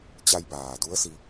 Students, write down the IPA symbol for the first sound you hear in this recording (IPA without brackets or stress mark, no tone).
t͡ɕ